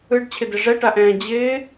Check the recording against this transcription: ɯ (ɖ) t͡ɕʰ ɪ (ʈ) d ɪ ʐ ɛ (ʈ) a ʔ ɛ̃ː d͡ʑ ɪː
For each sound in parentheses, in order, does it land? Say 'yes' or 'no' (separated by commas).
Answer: yes, no, yes